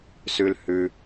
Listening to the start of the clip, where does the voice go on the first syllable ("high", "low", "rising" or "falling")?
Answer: high